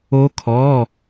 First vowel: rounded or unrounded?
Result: rounded